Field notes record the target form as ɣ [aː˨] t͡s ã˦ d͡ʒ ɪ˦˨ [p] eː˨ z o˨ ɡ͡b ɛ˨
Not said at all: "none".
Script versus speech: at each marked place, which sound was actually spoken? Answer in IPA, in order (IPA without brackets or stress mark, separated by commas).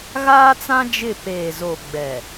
aː˦, p